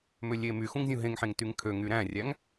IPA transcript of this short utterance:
m ø lʲ e m y x ũ ŋ zʲ ũ ɦ ẽ ŋ ħ ẽ ŋ t y ŋ kʰ ø ŋ y ɾ æ̃ rʲ æ ŋ

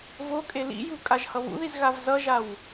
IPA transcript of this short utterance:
v o kʼ e l ḭ j u kʼ a ʒ h ʌ β ṵ ð i z ɣ a v z ʌ ʒ a w

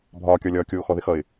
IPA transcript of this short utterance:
bʱ ɒː kʲ ɒ lʲ ɒː kʲ oː x ɔ ð ɪ x ʌ ɪ̯

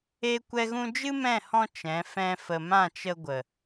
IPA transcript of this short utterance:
eː˦ kʷ ɛ˦ ɣ ũ˦ d͡ʒ ɨ˦ m ɛ̃˦˨ h ɔ̃˧ t͡ʃ ɛ̃˨˦ f ɛ̃˦ f ə˧ m ã˦˨ t͡ʃ ə˧ ɡʷ ə˨

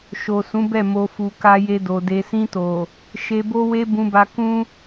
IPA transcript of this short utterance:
ʃ o˨ s ũ˨˦ b ɛ˦˨ m o˨ f u˨ k a˧ j e˧ d o˨ d e˨ s ĩ˧ t o˨ | ʃ e˨ b o˧ w e˧ b ũ˧ b a˧ k ũ˦

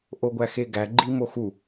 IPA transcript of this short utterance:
ʔ o ɡʷ æ x e ɡ æ ɡ͡ǃ i m o x u

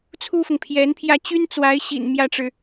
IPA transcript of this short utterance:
t͡sʰ u˥ f ʊ˨ ŋ pʰ j ɛ˧˥ n pʰ j ä˥˩ t͡ɕ y˥ n t͡s w a˧˥ ɪ̯ ɕ ḭ˨˩ n m j ä˥˩ ʈ͡ʂ ɻ̩˩

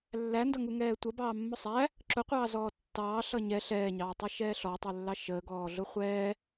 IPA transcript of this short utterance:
lː æ n d ʌ ŋ u ŋ ɛː tʷ ʌ b ɑː mː ʊ sˤ æ | ǁ ʊ qʷ ɑː z ɔː tː ɑː ɬ ʌ ɲ ɛ ɬ ɛː ɲ ɑː tˤ ɛ ʃ ɛː ɬ ɔ tˤ u lː ɑ ʃ əː ɡ ɔː ɮ ʊ χʷ ɛː

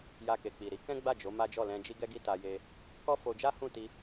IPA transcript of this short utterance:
j a˧ k e˨ k͡p i˨ ɾ i˧ k ɛ̃˦ ɡ͡b a˦˨ d͡ʒ o˨˦ m a˦ d͡ʒ ɔ˦˨ l ɛ̃˧ d͡ʒ i˦ ɡ ɛ˦ ɡ i˦ t a˧ j e˧ | k ɔ˦ f o˧ d͡ʒ a˦ h ũ˦˨ t i˧

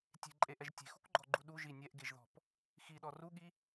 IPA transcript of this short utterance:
tʲ e̤ ǃʼ e ʔ ɛ ʒ tʲ e̤ x ṳ k ɡ͡ǃ ɔ ɡ͡ǃ u ɗ u ʒ i nʲ ɛ ʔ ɡ e ʒ ð ɔ̤ p | x i ɗ ɔ r u ɠ i

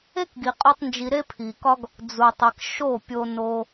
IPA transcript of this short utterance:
e˦ k ɡ i˨ qʼ o˦ tˤ n d͡ʒ i˧ ɾ e˦ pʰ i˨ k ɒ˦ ɡ | d͡z u˨ tˤ e˨ k ʃ o˦˨ pʲ o˧ n o˧

